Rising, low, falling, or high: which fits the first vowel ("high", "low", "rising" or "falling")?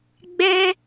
high